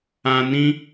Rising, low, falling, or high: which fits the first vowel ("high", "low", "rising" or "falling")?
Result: low